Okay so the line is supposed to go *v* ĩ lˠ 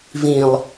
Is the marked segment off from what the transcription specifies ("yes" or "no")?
no